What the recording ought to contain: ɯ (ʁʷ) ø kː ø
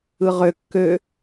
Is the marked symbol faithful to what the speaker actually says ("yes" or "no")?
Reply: no